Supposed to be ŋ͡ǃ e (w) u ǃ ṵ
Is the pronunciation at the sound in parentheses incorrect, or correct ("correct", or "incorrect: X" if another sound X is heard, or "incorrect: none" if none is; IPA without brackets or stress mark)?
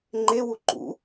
correct